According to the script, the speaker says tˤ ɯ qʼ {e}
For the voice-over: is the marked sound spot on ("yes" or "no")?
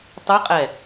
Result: no